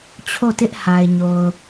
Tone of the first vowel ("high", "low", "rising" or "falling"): falling